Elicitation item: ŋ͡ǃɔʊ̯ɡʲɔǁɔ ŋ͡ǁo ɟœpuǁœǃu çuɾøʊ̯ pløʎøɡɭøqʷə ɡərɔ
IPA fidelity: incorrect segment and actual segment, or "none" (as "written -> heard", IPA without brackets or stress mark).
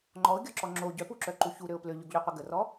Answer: ɭ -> ʎ